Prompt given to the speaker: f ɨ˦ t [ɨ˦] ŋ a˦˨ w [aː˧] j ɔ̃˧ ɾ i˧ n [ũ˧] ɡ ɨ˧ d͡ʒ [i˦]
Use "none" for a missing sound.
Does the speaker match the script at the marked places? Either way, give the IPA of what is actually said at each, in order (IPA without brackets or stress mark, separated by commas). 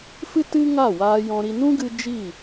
ɨ˦, aː˧, ũ˦, i˦˨